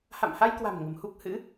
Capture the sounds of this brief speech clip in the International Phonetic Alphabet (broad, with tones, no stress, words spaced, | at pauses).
ha̰˧˨mha˧jkwa̤˨˩m ŋə̤˨˩m hu˦˥k̚hɨ̰˧˥